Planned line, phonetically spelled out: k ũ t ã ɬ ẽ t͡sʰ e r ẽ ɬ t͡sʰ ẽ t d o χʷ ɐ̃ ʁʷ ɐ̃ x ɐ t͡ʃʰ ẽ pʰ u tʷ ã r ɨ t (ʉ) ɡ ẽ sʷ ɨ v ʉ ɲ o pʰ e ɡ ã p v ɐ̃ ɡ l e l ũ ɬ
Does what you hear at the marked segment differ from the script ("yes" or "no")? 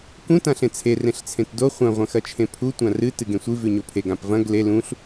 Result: yes